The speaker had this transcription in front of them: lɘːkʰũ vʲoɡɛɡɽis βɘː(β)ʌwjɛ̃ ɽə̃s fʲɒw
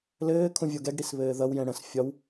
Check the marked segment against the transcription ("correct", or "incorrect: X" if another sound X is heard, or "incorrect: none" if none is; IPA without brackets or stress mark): incorrect: ð